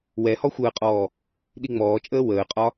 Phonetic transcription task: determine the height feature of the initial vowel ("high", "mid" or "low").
mid